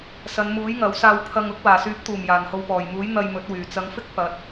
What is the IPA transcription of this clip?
sɐ˨˧nmuː˨˥j ŋɐ˨˥wsaː˧wpʰɐ˧ŋʊ˥k̚ waː˨˩syː˨˥p̚t̪uː˨˩m jaː˨˩nho˨wpɔː˨˩jmuː˨˥j n̪ɐ˧jmɵ˨˥t̚wyː˨˩ t͡sɐ˨˧ŋfɪ˥k̚ pɐ˨˥t̚

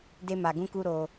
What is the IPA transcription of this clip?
de˦ma˧ɡũ˦ku˦ ɾo˦

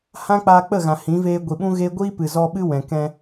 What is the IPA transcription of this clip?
hã˦k͡paː˧k͡pə˦˨ ɣã˨hĩ˨˦veː˧ ɡʷi˨ɓũ˦ ɣe˦ ɡʷiː˦pɨ˨ zɔ˧ɓɨ˦wɛ̃˨kɛ̃˧

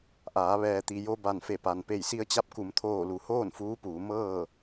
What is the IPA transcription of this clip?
ʔaː˩˧ ʋɛː˩t̪i˩jo˧ ba˧˩nfe˧˩pa˩n pe˧˩jsi˧ə̯t͡ɕa˧˥p̚ ku˩˧mt̪ʰoː˧˩lu˩˧ hoː˥˨nfuː˧˥puː˩˧ mɤː˥˨

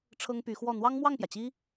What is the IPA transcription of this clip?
ʈ͡ʂʰɤ˥ŋpy˧˥ xwɔ˥˩ n̪wɑ˥ŋmwɑ˥˩ŋpjä˩t͡ɕi˥

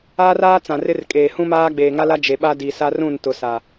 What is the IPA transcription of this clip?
aː˦raː˦ t͡sã˨rɪ˦rkʼeː˨ hũ˦maː˦ ɡ͡beː˨ŋa˦la˦ d͡ʒe˨ɓa˦di˨ sa˦rũ˦˨n tʊ˨ sa˨

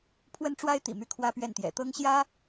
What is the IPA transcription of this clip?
pʰwə˥nʈ͡ʂwa˥ɪ̯t̪ḭ˨˩ my˥˩kʰwä˥pɥɛ˥˩nt̪jɛ̰˨˩ t̪ɤ˥ŋɕjä˥

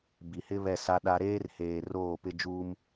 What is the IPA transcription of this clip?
bi˨hɪ˦ βɛ˦˨sa˦ɗa˦ ɾeː˦rheː˨ roː˦˨pɪ˦d͡ʒuː˦m

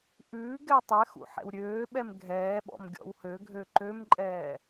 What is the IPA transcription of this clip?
ʔʉː ɡɛtˤɛxṵ ħɛ̰wɾʲøːɓɛm ɡʱɛːɓɔ̰m ɡʲɔ̰whøɡʱø ǃømǃʼɛː

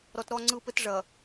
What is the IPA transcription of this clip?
ɾɔ˨tɾɔ˦˨ ŋ͡ǀɯ˦˨pɘ˦tʐɐ˨

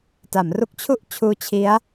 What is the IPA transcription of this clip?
ta˩˦mru˦˥k̚t͡ɕʰu˥˩ʔt͡ɕʰuː˦˥ t͡ɕʰi˦˥a̯

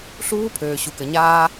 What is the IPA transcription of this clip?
ɬuː˦˥pʰøː˩ ɕu˩kɘ˩ɲaː˧

